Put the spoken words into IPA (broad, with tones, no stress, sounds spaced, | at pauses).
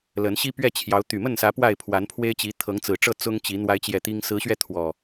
l ə˨˦ n ɕ i˦ p ɥ ɛ˥˨ t͡ɕʰ j ɑ˨˦ ʊ̯ t̪ y˨˩ m ə˥˨ n s ä˨˦ p w a˥˨ ɪ̯ pʰ w a˨˦ n pʰ w e˦ ɪ̯ t͡ɕ i˨˦ t̪ʰ ɤ˨˦ ŋ t͡s ɹ̩˨˩ ʈ͡ʂ ɤ˥˨ t͡s ʊ˦ ŋ t͡ɕ i˨˦ n̪ w a˨˦ ɪ̯ t͡ɕ j ɛ˨˩ t̪ i˦ ŋ s ɹ̩˨˦ ɕ ɥ ɛ˧ t̪ʰ w ɔ˨˩